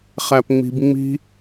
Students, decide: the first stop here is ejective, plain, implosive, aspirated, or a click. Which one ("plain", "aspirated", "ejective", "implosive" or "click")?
plain